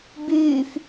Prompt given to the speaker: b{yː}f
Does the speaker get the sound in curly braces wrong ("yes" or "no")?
no